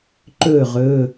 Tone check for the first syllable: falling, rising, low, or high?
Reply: falling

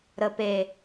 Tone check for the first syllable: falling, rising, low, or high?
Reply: low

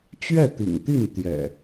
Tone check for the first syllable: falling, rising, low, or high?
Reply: falling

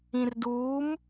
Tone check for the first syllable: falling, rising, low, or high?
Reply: low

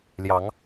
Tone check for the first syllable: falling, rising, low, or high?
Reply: rising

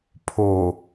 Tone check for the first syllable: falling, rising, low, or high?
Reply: low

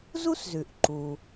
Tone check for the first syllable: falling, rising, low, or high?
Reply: high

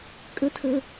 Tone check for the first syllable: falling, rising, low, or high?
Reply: rising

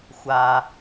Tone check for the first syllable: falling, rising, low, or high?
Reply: low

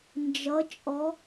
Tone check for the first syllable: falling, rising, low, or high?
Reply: rising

